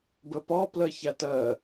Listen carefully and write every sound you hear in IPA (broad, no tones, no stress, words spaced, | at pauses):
bəpɒ plɜçætɜ